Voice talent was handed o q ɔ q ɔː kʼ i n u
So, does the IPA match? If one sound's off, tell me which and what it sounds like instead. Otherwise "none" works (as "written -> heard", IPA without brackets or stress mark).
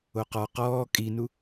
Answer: none